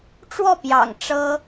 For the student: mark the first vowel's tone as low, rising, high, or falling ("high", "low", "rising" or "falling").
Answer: falling